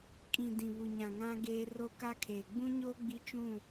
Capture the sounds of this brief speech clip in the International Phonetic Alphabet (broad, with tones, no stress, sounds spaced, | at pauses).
kʼ ĩ˨ d ĩ˨ β u˨ ɲ ã˨ ŋ ã˦ ɡ eː˦ r o˦ k a˦ kʰ eː˨ ɡ͡b ũ˦ ɲ o˦ ɡ͡b i˦ t͡ʃ ũ˦˨